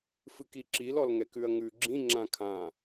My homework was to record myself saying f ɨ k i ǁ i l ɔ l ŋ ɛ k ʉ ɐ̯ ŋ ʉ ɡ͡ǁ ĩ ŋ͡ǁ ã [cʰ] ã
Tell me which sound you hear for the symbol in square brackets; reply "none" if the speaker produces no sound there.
kʰ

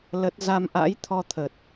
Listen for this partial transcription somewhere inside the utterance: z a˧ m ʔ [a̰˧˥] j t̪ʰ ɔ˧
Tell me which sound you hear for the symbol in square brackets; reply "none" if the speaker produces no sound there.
a̰˧˥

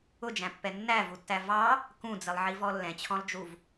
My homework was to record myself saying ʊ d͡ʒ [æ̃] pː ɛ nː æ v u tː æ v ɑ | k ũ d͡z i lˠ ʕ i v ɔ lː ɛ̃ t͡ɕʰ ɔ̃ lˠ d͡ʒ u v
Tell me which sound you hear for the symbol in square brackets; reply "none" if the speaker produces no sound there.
æ̃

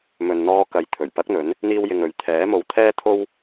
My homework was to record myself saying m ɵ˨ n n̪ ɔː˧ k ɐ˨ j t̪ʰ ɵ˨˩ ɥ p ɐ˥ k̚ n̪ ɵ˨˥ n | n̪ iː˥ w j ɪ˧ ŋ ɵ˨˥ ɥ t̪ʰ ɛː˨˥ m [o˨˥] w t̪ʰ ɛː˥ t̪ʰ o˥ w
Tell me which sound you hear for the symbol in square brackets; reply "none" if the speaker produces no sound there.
o˨˥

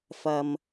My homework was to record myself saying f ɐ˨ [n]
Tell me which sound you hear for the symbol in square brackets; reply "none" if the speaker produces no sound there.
m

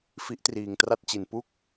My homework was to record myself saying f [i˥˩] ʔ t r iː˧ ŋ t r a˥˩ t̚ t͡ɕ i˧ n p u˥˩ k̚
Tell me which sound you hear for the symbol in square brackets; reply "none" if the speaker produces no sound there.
i˦˥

